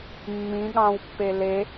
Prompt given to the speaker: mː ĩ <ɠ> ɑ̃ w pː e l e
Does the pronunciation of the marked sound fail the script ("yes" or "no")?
no